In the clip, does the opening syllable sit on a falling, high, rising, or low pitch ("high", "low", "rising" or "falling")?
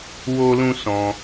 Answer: high